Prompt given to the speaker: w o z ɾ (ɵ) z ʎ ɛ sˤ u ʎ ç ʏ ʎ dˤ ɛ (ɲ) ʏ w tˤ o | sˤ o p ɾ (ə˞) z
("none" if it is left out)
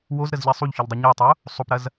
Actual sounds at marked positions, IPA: ə, ɲ, ɐ

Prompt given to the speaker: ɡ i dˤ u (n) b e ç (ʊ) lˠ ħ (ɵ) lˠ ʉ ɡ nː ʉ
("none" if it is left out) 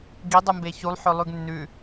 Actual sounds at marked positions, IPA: m, u, ɵ

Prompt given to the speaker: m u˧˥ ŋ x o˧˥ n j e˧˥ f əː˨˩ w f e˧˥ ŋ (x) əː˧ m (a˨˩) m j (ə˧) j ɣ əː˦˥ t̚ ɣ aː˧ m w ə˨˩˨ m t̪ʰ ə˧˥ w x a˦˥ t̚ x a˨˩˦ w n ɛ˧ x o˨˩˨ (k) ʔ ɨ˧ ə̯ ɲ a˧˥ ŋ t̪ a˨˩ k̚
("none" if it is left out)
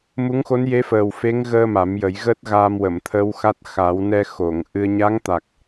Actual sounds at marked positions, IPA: ɣ, a˨˩˦, ə˨˩˦, ŋ

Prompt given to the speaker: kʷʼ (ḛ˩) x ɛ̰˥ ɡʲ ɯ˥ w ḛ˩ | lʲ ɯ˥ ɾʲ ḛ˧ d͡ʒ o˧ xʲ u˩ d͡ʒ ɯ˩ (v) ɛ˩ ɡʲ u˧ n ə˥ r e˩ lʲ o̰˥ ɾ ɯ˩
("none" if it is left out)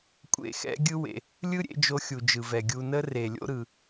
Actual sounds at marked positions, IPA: ḛ˧, v

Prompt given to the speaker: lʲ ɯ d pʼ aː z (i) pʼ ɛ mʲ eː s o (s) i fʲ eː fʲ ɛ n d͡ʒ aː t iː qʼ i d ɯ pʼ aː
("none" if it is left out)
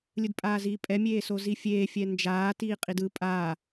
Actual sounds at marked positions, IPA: iː, z

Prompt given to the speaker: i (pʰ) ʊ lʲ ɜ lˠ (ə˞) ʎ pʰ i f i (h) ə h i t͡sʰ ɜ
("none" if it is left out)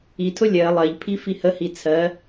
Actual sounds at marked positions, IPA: tʰ, ɜ, h

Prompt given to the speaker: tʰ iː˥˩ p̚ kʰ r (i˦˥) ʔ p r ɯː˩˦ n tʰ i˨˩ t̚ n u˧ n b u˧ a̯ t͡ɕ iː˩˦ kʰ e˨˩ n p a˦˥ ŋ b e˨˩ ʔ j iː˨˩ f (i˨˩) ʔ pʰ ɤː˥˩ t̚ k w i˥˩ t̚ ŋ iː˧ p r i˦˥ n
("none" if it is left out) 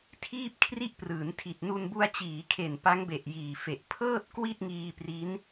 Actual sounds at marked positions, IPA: i˥˩, e˨˩

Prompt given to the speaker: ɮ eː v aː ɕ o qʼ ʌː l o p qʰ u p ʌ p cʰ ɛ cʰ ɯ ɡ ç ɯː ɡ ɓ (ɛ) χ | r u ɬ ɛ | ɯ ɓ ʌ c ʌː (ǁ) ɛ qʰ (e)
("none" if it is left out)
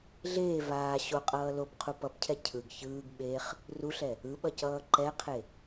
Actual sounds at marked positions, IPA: e, ǃ, e

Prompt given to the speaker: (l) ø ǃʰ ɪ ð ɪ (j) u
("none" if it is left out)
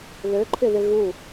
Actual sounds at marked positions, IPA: l, ɣ

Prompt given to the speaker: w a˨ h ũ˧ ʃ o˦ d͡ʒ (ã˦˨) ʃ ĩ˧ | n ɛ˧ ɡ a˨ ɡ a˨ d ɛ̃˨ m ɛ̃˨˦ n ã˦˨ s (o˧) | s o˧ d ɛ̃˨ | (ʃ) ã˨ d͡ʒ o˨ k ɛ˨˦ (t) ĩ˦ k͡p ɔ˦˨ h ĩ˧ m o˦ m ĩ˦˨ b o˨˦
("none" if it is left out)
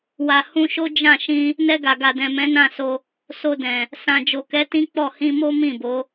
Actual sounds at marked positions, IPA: ã˦˨, o˧, s, t

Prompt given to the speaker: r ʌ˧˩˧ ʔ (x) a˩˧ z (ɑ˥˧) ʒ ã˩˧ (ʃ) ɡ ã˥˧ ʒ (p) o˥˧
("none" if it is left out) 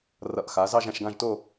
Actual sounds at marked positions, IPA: x, ɑ˥˧, ʃ, t

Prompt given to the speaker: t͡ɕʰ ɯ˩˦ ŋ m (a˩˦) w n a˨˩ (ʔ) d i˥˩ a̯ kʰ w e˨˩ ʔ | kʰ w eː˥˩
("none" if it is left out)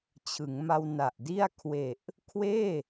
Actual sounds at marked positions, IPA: a˧, ʔ

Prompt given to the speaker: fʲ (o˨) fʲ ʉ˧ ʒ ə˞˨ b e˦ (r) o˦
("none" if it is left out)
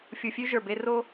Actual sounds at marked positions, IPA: u˨, r

